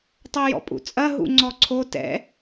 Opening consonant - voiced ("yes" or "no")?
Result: no